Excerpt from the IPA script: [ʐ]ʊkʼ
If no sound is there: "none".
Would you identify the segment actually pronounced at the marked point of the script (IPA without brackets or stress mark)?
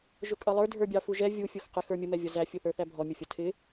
ʒ